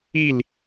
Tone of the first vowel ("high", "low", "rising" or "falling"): falling